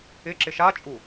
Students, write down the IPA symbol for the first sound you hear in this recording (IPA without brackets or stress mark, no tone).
ɪ